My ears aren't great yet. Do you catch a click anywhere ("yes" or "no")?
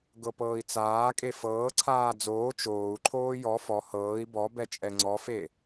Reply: yes